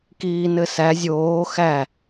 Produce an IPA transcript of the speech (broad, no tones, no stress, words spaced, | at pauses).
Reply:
kiːnɘsæ zʲoː xæ